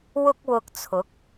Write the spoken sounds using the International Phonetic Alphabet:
w ʊ˥ k̚ w ʊ˧ k̚ t͡sʰ ʊ˨˥ k̚

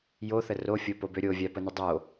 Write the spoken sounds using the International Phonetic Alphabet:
j o θ ə r o fʲ o p o b ø ɾʲ o vʲ a p ə n ʏ dˤ o

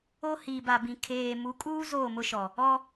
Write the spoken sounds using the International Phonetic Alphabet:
o˦ h iː˨ b a˨ b ĩ˨ kʰ eː˨ m u˨˦ kʼ uː˦ z oː˦˨ m ʊ˦ ʃ ɔ˨ | ɔ˦

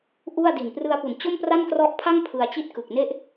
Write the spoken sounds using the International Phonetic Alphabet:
ʔ u˥˩ a̯ d i˨˩ n p r ɯ˧ a̯ p u˨˩ n t͡ɕ o˥˩ m p r a˥˩ n k r ɔ˦˥ ʔ pʰ a˥˩ ŋ pʰ ɯ˧ a̯ t͡ɕ i˥˩ t̚ k ɯ˨˩ k̚ n e˥˩ ʔ

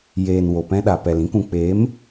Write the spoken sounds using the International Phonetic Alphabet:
j eː˨ n w o˨ p ɛ̃˧ ɗ a˨ p ɛ˨ l ĩ˧ k ũ˨ k͡p eː˨˦ m

